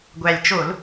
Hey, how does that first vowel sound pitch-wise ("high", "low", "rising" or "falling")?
low